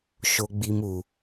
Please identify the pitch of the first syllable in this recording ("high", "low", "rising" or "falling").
high